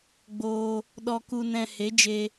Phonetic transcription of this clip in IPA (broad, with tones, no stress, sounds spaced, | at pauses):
ɡ͡b oː˧ | ɗ ɔ˧ k u˧ n ɛ̃˧ h e˨˦ d͡ʒ e˧